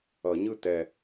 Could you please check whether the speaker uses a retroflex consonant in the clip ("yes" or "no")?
no